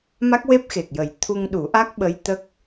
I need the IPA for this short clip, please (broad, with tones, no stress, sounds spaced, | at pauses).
m a˦˥ k̚ w e˦˥ p̚ x e˨˩ k̚ j ə˨˩˦ j t̪ʰ u˧ ŋ ɗ u˨˩˦ ʔ a˦˥ k̚ ɓ ə˧˥ j t̪ ə˦˥ k̚